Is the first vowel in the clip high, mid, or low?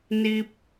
high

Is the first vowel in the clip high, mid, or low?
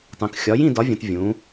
high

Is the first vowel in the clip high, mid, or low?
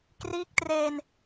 high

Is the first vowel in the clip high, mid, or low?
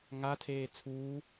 low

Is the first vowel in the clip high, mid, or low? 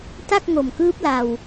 low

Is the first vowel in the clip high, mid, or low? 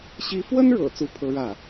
high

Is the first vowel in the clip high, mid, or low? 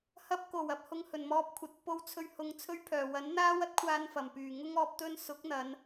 low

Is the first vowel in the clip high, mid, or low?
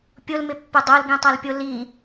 high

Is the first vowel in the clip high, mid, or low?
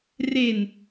mid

